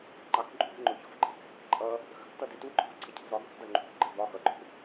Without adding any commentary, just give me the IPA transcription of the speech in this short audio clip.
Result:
ŋ͡ǃ ɑ k ǃʼ ṳ v ŋ͡ǃ ʊ ç ɔ̤ v ǃʼ ɪ k h ɪ k ǃʼ ʌ | x ə̤ k t ʌ d ɪ t u ɡ͡ǃ ɔ̤ k ǀʰ ə cʰ ə̤ v ɾ ɒ ɡ ɔ̤ v d ʌ ŋ͡ǃ ṳ k ɡ͡ǃ ə v ɒ x ʌ ɡ͡ǃ ʊ k

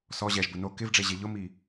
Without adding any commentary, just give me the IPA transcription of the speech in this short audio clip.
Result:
s ɔ ʑ ɛ ʒ b ʊ n o k ɪ v ɖ͡ʐ e ʑ e ʎ ʊ m i

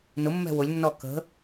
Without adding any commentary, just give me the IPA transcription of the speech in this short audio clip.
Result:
n ʊ mː ɛ̤ w ʊ lʲ nː ɔ k ə̤

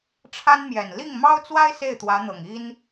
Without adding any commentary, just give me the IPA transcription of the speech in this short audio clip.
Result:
ʈ͡ʂʰ a˥ n m j ɛ˨˩ n l i˥˩ ŋ m ɑ˥ ʊ̯ t͡s w a˥ ɪ̯ s e˥˩ ɪ̯ t̪ w ä˧˥ n̪ ɤ˨˩ ŋ i˥ n

